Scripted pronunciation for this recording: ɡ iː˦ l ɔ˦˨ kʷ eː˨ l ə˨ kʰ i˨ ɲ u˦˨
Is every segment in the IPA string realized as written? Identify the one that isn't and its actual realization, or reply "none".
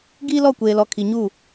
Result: ə˨ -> ɔ˨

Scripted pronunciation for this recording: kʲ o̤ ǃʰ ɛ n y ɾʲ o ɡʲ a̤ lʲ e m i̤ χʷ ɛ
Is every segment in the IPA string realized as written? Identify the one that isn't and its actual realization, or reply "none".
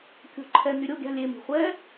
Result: none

